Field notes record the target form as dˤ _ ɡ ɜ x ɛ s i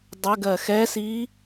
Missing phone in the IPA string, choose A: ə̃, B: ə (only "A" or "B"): B